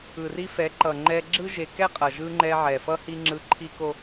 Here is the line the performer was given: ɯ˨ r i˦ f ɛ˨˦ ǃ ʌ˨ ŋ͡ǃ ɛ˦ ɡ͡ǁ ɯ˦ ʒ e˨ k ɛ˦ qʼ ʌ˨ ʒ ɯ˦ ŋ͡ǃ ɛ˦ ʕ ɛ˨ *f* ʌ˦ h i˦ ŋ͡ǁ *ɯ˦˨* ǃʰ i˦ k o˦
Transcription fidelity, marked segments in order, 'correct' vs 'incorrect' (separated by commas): correct, incorrect